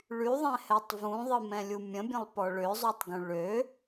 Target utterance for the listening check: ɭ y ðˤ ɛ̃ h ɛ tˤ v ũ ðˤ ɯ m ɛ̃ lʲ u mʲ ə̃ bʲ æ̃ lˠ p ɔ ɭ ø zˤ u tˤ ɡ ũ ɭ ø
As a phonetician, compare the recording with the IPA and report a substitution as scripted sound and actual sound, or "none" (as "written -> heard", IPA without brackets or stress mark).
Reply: æ̃ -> ə̃